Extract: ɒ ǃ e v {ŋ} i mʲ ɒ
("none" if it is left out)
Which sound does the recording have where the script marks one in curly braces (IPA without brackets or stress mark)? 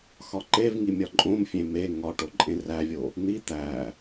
ŋ